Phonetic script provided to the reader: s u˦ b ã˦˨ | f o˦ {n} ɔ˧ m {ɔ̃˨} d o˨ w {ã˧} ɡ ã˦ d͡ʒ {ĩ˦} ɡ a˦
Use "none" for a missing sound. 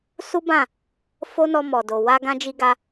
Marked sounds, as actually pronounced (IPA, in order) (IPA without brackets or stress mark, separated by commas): n, ɔ˨, a˧, i˦